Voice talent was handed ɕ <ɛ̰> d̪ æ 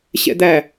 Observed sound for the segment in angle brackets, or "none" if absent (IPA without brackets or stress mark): ɛ̰